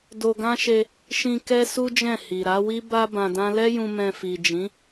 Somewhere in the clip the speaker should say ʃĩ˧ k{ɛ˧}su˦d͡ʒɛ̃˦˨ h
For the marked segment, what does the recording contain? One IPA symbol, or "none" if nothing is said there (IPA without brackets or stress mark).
ɛ˦